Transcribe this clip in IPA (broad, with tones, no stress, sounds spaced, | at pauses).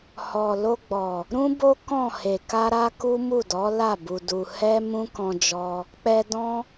h ɔ˨ l o˧ ɡ͡b ɔ˨ | ɾ ũ˦ b o˦ k ɔ̃˦˨ h e˨ k a˧ ɾ a˦ k u˦ m u˦˨ d ɔ˨˦ l a˦˨ b u˧ d u˧ h ɛ˦ m ũ˦ k ɔ̃˧ d͡ʒ ɔ˧ | k͡p ɛ˧ d ɔ̃˦